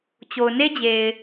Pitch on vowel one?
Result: low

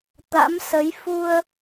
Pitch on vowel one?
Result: rising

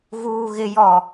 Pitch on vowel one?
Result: low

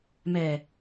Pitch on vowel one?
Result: low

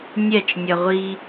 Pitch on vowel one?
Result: falling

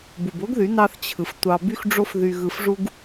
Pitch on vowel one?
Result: low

